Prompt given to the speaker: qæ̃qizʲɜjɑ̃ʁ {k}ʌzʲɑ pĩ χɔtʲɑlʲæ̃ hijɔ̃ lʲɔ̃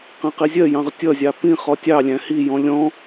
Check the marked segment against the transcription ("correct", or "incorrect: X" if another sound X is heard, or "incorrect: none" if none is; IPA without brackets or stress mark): incorrect: tʲ